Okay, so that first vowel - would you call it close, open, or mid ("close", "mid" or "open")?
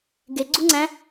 mid